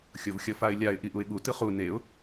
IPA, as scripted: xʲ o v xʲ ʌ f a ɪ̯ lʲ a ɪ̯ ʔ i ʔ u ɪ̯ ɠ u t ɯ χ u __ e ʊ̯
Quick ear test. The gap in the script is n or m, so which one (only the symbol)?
n